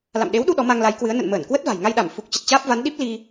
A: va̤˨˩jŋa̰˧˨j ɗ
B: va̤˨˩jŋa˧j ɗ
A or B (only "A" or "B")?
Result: B